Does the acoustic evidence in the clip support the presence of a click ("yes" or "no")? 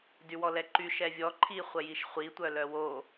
yes